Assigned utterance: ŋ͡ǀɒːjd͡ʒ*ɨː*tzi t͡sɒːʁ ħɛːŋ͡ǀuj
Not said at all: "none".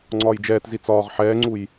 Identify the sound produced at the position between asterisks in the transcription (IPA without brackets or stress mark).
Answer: ɛː